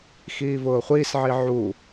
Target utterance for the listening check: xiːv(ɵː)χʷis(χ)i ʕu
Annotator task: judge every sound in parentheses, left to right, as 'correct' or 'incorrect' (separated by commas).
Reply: incorrect, incorrect